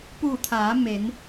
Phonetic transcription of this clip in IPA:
puː˧˩t̪ʰaː˩˧ me˩˧n

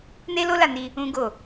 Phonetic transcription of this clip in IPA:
ne˦lo˦la˦˨ni˧ | ũ˦ɡo˦˨

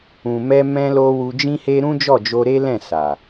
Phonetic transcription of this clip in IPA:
ũ˨mɛ˧ mɛ̃˧lo˧ wu˧d͡ʒĩ˦he˦ ɾũ˦d͡ʒɔ˦˨ d͡ʒo˧ɾe˦lɛ̃˦˨ sa˨

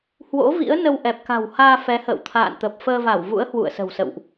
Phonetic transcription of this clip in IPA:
hwo̰˧˥ vḭ˧˥ə̯nə˧wʔɛ˨˩p̚ ka̤˨˩whaː˧ fɛ˨˦hə̰ː˧˨w t̪ʰa̰ː˧˨nt̪ə˨˩p̚ fəː˧va˧˩wvṵ˧˥ə̯ hwṵ˧˨ə̯sə̤˨˩wsə̰˧˨wʔ

